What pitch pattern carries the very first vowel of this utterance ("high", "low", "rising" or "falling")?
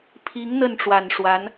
rising